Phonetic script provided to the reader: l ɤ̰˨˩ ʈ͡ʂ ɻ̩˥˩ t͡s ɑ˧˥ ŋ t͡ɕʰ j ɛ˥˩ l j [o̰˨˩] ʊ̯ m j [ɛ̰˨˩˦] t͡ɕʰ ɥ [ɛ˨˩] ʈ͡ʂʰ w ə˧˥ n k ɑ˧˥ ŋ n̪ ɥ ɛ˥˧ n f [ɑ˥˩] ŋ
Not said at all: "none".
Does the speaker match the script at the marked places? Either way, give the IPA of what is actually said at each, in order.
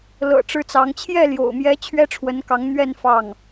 o̰˨˩, ɛ˧˥, ɛ˥, ɑ˥˩

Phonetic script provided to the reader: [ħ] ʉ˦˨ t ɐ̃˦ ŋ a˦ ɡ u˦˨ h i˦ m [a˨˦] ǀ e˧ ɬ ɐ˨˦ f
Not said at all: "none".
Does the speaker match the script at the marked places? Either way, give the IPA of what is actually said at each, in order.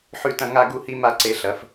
ħ, a˦

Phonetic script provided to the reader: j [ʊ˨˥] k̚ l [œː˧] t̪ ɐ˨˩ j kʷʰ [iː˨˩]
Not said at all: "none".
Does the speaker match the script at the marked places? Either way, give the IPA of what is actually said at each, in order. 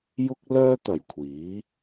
ʊ˧, œː˧, iː˨˥

